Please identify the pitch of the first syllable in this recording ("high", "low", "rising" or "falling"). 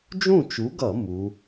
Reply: falling